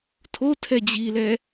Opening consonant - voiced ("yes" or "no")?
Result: no